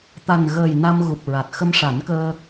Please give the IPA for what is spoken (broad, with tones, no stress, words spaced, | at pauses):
t̪a˨˩nɣəː˨˩j na˧m ɣu˨˩p̚ɹa˨˩t̚ xə˧mʂa˨˩˦n kəː˧